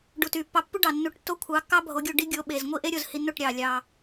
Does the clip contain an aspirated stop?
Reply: yes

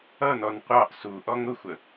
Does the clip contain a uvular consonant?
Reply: yes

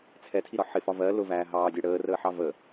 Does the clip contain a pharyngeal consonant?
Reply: yes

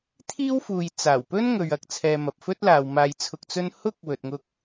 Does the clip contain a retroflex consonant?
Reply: no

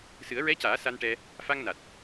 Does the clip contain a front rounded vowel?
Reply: no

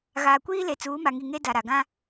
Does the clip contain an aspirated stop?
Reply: no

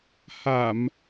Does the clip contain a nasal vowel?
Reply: no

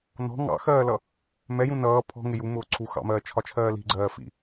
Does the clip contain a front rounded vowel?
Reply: no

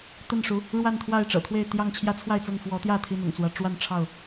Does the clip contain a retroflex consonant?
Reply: yes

